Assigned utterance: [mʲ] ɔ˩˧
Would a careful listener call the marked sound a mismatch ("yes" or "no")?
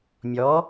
no